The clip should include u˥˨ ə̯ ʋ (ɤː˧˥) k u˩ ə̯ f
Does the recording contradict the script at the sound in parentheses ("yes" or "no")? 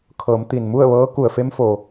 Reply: no